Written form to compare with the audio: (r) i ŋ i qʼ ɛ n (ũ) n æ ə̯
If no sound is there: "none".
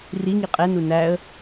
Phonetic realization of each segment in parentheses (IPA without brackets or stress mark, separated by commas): r, u